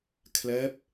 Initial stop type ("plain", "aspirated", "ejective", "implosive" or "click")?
aspirated